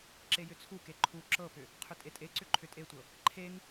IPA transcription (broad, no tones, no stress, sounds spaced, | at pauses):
ǁ e j ʏ t͡sʰ u k e ǃʰ u ǁ ɤ p ʏ | qʰ ʏ tʼ e tʼ e ǀ ʏ ǃʰ ʏ tʼ e tʷ ɤ | ǃʰ e ŋ